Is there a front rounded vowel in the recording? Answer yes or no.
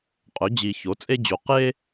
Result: yes